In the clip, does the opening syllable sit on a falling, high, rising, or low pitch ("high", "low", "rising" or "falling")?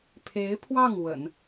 rising